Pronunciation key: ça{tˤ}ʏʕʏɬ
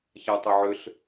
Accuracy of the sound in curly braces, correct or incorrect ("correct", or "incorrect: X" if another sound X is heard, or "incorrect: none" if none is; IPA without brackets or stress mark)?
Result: correct